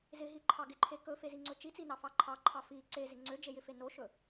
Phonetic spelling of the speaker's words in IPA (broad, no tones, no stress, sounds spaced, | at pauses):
z ɪ ɦ i ǃʰ ɑ ɡ ɪ ǃʰ e k ɵ f e z i ŋ͡ǀ ɵ t͡ʃ i t͡s i n ɑ f ɑ ǃʰ ɑ ǃʰ ɑ f i ǀ e z ɪ ŋ͡ǀ ø d͡ʒ e j ɪ f e n o ʃ ɵ